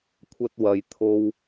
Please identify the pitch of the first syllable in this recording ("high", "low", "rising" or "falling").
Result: high